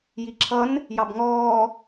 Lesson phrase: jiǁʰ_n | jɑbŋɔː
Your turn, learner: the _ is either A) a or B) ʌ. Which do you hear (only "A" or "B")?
B